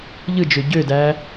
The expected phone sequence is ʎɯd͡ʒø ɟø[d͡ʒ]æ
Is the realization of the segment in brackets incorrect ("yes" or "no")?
yes